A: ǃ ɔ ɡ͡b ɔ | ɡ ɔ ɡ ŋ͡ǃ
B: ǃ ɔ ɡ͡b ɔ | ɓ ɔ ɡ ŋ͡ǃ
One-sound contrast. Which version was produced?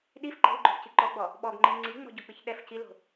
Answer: B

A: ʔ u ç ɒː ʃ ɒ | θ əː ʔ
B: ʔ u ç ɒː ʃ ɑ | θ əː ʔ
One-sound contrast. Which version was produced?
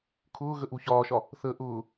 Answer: A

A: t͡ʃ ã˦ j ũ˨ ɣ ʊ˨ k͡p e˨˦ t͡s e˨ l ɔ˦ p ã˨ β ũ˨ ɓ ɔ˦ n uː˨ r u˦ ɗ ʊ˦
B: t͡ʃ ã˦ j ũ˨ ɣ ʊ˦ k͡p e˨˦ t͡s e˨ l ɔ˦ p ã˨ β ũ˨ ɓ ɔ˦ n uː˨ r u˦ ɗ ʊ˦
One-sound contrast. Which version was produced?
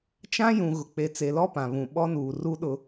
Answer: A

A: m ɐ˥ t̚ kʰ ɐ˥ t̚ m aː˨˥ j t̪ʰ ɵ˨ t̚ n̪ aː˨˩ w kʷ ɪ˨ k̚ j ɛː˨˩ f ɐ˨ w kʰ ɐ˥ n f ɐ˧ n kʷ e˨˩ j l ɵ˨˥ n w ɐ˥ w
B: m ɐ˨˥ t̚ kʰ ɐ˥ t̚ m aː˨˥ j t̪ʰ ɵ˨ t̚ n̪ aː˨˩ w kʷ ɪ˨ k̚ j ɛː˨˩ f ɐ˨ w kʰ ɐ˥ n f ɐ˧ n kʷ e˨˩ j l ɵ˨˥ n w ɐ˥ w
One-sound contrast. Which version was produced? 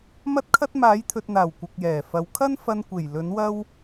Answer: A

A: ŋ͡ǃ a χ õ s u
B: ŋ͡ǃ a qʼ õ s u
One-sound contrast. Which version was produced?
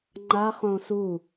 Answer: A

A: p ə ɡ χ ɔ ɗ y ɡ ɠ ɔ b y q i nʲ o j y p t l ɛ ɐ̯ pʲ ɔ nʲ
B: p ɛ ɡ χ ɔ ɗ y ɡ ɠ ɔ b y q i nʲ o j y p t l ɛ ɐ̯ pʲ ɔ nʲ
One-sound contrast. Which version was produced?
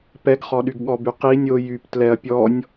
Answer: B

